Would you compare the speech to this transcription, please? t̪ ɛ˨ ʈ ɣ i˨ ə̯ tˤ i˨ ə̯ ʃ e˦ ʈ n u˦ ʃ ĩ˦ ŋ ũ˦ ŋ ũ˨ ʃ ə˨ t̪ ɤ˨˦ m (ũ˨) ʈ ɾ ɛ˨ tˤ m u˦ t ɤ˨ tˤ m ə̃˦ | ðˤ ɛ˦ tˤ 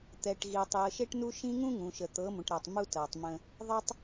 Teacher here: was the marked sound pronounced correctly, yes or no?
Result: yes